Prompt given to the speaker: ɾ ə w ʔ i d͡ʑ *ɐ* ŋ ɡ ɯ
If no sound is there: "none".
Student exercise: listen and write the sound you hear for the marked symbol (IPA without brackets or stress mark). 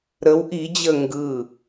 ə